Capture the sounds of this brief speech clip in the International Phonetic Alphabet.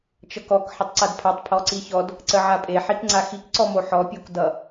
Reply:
t͡ʃ ʌ k ɔ k ħ ə tˤ ǀ a d pʰ a tˤ pʰ ɔ ǀ i ç ɔ d | ǀ ə ʕ a pʼ e ħ i k ŋ͡ǀ a x i k ǀ ɔ m o ħ ɔ pʲ o k d ʌ

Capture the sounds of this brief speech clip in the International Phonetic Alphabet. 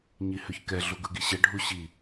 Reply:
ɲ i h ø ç k ɛ ɮ u ɡ ɯ ɡ i ɕ ɛ ɖʱ u ɕ i

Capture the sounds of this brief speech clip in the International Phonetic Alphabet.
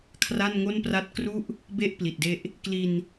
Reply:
kʰ r a˥˩ n ŋ o˥˩ n p r a˥˩ t̚ k r u˦˥ ʔ | b e˦˥ ʔ p l i˨˩ t̚ d e˦˥ ʔ | k l i˧ n

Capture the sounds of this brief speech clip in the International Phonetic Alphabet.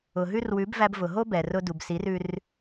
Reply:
ʊ˨ ɦ ʉ˦ r w ʉ˨˦ b v æ˧ b v ʊ˨ ɦ o˦ b ɛ˨ r ʊ˧ d u˨ b s i˨˦ r ʉ˧ r

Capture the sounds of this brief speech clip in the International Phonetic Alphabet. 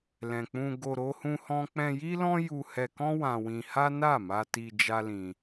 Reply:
l ɛ̃˨ k͡p ũ˧ ɡ o˧ ɾ o˦ h ũ˦ h ɔ̃˦ k͡p ɛ̃˧ j i˦ l ɔ̃˦ j u˧ h ɛ˧ k ɔ̃˦ w ã˧ w ĩ˧ h a˦ n a˦˨ m a˧ t i˧ d͡ʒ a˦ l ĩ˧

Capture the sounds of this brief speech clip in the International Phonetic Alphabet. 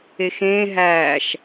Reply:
e x ẽː ɦ æː ʃ

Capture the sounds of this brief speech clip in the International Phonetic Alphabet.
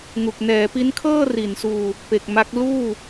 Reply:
ŋ u˨˩ k̚ n ɛː˩˦ p i˦˥ n kʰ ɤː˥˩ r i˩˦ n s uː˧ | p e˨˩ k̚ m a˦˥ k̚ l uː˥˩

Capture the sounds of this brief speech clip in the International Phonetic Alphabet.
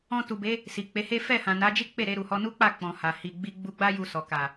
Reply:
ɔ̃˧ t u˨ b e˨˦ | s i˨ k͡p e˨˦ h e˦ f ɛ˦˨ h ã˨ n a˨˦ d͡ʒ i˦ k͡p e˦˨ ɾ e˧ ɾ u˨ h ɔ˧ n u˦ k͡p a˦˨ k͡p ɔ̃˨ h a˨ h i˧ ɡ͡b i˧ ɡ͡b u˧ ɡ͡b a˦ j u˧ s ɔ˨ k a˨

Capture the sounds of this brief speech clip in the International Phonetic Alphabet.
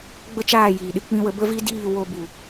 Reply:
ɡ͡b ə˦ t͡ʃ aː˦˨ j iː˨ ɗ ɨ˨˦ k͡p ĩ˧ w ə˧ b ə˦ v i˦ d iː˦˨ w o˧ b u˨

